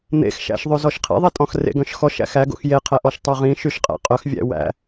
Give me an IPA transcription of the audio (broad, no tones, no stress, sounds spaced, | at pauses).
n̪ ḛ x ʃ æ̰ ʃ ðˤ ʉ z ɔ ʃ qʰ ḭ ðˤ i tʼ ɔ̃ x r ḛ ɡ œ̃ ʃ x ɔ ʃ æ̰ x æ ɡ o̰ x j e qʰ ɛ ʔ ɔ ʃ tˤ œ ʁ ĩ ʃ y ʃ qʼ æ̰ qʼ œ x vʲ æ̰ w æ̰